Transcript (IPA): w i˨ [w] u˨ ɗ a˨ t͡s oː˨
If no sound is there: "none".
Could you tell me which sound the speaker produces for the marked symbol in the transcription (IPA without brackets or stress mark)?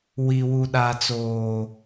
w